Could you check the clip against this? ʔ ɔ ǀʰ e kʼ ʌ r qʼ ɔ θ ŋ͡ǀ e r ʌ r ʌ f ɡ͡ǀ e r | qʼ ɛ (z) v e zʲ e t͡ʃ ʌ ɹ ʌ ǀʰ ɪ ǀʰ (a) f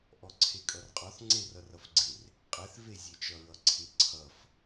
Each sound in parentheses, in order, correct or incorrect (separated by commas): incorrect, incorrect